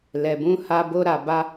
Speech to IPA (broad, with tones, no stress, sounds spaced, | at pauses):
l ɛ˧ b ũ˦ h a˦ b o˦ ɾ a˧ b a˦